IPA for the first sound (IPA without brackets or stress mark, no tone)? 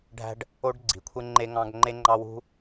ɖʱ